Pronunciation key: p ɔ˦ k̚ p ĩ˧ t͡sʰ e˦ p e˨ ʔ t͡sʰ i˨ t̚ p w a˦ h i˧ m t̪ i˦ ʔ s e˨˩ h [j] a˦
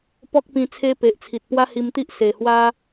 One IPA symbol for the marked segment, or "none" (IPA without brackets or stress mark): w